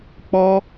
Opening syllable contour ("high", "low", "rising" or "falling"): high